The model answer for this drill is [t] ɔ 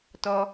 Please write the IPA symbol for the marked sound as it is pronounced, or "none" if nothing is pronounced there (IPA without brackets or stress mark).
t